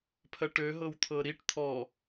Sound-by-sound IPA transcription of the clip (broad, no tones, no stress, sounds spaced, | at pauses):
pʰ ɜ ʈ ø ɦ ɤ w t̪ʰ ɤ ɾ i ʈ t̪ʰ ɔ